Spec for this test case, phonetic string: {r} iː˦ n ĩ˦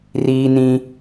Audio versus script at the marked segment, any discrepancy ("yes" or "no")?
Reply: no